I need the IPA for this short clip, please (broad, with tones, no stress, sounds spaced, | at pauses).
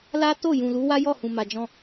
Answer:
l a˦ t o˦˨ j ũ˨ l u˨˦ w a˦ j ɔ˦˨ h ũ˨ m a˨ d͡ʒ ɔ̃˧